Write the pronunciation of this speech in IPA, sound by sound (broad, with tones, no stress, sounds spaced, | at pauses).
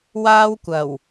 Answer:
w aː˥ w kʷ ɐ˨˩ w